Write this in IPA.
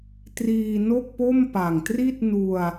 t r iː˧ n o˥˩ k̚ p o˥˩ m p a˨˩ ŋ t r i˥˩ t̚ n u˧ a̯

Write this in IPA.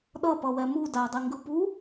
ɗ ʌ p ʌ w ɛ m u d a dˤ i ŋ ɡ ɯ p u

